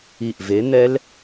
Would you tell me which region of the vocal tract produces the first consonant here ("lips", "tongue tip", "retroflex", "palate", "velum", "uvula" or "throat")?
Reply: throat